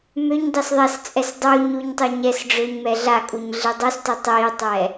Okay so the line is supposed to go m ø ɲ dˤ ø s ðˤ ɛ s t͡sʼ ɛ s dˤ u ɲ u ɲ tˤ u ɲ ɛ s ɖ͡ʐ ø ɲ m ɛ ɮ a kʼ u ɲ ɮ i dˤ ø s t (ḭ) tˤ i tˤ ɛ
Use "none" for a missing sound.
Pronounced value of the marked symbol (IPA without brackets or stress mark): i